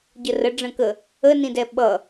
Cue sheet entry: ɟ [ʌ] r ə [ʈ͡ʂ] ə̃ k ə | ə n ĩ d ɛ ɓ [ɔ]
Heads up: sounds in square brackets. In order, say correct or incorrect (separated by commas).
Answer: incorrect, incorrect, incorrect